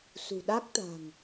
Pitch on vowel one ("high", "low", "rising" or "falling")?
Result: low